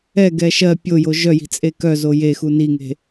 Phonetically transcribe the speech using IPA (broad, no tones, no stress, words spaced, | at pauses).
ɛɡɛ ʃɜ pʲojo ʒœji̤t͡sʼe kœzo jexu niŋe̤